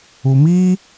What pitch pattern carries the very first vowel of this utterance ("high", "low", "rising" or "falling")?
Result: low